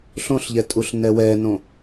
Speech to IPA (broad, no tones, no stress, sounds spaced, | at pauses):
ɬ õ ɬ ʎ ɛ tʼ u ɬ n ɛ w ɛ n õ